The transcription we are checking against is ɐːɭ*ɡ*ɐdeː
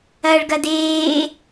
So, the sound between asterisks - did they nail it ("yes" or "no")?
yes